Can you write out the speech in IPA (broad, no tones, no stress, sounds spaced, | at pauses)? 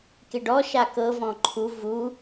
k e ɖ ɔ ʃ a k ɤ v ɔ̃ ǃʰ u v u